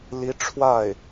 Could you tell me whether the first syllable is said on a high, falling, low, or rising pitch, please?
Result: rising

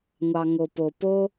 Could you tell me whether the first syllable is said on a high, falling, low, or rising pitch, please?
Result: low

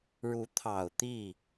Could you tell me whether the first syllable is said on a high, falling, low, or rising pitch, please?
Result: rising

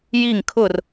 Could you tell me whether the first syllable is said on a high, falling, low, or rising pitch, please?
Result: falling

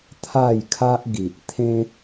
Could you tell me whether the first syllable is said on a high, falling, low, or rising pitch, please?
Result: falling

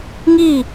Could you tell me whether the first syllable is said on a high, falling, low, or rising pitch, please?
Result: falling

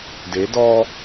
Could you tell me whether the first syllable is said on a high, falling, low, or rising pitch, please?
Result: rising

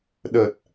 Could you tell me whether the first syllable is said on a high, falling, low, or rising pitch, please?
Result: low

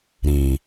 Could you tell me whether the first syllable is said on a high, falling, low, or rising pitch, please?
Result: low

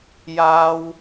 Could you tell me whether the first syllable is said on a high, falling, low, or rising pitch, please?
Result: high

